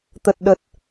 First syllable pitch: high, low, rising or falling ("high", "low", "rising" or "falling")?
low